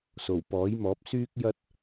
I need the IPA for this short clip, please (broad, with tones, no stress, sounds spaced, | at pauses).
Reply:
s o˨˩ w p ɔː˨˥ j m ɔː˨˥ p̚ s yː˥ k̚ j ɐ˥ t̚